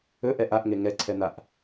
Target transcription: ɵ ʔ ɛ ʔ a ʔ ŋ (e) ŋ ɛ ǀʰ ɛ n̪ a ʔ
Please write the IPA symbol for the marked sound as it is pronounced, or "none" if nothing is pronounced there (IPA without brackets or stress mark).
e